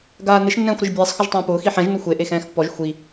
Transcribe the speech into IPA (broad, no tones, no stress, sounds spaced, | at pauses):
ɡ aː n ɪ ʃ nː ɛ̃ː xʷ ɾ ɪ ʒ bʲ ɛː sˤ x ʊ ʒ tˤ ãː p ʊː x i ħ ɛ̃ ʒ n ʊ xʷ e ʔ e x ɛ̃ː x pː ɔ ʒ xʷ i